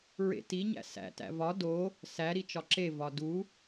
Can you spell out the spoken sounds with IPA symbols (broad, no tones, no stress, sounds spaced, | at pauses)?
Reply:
ɹ ḛ t i ɲ æ̰ s æ̰ t æ̰ v ɒ d o | s æ ɾ i t͡ʃ ɒ ǁ e v ɒ d u